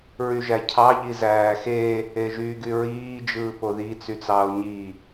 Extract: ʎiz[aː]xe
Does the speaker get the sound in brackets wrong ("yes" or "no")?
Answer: yes